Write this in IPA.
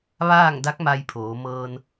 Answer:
ʋ aː˥˨ ŋ d a˧˥ k̚ m a˧ j pʰ oː˩˧ m ɤː˧ n

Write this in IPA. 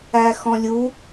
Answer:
æ x ɔ̃ lʲ u

